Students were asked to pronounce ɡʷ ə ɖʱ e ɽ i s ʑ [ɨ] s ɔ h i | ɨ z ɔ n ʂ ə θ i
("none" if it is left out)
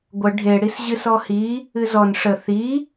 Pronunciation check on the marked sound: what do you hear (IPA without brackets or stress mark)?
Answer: ɨ